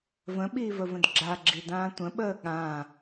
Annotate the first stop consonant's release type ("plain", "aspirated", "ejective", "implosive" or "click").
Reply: implosive